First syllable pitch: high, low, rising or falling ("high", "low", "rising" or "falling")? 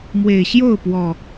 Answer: low